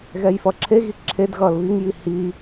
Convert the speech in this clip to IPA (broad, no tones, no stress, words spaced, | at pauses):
ɣɛjfʌǁʰeɣi ǁʰedɣʌːl βiŋji hi